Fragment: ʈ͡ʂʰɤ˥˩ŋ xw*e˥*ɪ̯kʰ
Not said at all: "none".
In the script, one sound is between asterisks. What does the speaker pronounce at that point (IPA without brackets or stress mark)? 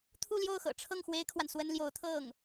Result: e˥